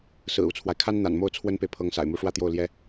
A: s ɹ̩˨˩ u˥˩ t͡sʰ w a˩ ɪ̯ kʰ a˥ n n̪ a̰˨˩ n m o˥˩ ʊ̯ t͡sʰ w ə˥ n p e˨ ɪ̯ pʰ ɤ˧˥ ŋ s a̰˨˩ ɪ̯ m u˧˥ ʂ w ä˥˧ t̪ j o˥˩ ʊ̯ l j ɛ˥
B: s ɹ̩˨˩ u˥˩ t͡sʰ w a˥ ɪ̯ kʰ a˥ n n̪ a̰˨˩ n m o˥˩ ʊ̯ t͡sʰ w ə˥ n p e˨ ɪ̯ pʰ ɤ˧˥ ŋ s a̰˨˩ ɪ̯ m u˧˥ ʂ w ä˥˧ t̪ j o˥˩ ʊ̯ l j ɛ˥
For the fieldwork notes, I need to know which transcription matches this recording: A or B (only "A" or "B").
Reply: A